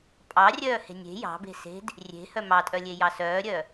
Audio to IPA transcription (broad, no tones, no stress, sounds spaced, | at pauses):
pʼ ɑ rʲ œː h e̤ nʲ e̤ j ɑ̤ b e̤ s e̤ d | rʲ e̤ h œ m ɑ tʼ œ lʲ e j ɑ s œː ɾʲ œ